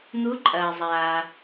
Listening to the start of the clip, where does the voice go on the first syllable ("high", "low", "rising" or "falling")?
rising